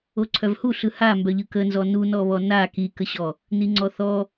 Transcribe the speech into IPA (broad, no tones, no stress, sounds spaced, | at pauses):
o ǀʰ œ v h u ɬ ɯ h a m b œ ʎ ɯ k ə n z ɔ n u n ɔ β ɔ n a k i k ə ɕ ɔ | n i ŋ͡ǀ ɔ θ ɔ